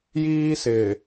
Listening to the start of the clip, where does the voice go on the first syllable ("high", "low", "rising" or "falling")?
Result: high